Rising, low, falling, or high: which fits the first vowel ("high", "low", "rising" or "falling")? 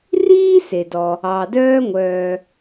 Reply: high